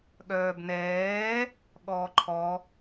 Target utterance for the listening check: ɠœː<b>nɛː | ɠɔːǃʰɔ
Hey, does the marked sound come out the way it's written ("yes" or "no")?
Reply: yes